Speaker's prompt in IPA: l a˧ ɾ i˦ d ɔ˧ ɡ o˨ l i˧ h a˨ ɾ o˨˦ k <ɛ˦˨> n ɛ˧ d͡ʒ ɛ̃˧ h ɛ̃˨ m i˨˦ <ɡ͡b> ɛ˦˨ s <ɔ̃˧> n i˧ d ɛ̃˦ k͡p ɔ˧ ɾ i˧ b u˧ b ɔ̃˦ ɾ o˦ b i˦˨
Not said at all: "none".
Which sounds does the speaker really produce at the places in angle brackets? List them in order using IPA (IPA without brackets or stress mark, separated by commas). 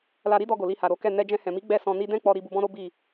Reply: ɛ˦˨, ɡ͡b, ɔ̃˧